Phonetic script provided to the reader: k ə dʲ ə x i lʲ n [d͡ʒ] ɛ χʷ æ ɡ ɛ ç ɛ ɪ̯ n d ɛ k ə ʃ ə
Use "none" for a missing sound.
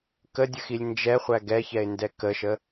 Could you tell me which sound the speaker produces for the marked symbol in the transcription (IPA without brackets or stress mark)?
d͡ʒ